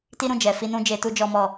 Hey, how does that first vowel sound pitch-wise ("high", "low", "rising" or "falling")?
high